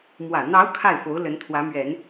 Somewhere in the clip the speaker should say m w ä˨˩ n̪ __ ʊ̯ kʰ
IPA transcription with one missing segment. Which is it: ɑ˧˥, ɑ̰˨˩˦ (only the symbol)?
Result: ɑ˧˥